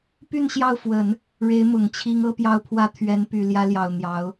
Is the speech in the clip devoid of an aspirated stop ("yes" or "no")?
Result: no